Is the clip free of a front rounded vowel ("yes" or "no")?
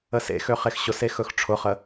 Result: no